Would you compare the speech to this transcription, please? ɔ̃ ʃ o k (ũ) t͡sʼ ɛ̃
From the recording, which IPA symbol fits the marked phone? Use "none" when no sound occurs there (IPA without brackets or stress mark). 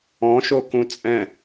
ũ